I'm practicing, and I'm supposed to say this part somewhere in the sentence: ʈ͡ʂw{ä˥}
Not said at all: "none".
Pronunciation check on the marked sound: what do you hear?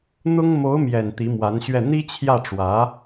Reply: ä˧˥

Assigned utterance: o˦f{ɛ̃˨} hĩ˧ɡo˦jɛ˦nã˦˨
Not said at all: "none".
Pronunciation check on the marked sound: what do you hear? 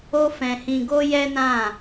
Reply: ɛ̃˧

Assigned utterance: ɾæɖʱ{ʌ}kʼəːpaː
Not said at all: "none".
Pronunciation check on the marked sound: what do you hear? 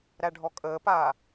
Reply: ɔ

